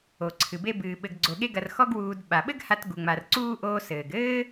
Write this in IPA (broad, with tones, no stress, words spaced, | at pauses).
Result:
o˩ǀʰɨ˩be˦bɨː˨ ɓɘ˨ɡɡ͡ǀo˨ɠe˦ ɡɐ˨rxɔ˦ɡ wuː˨dɓa˩ ɓɘ˥ɡ ha˦t ɡu˨ŋ͡ma˨rǀuː˥ʔoː˦ sɘː˩ɡɘː˥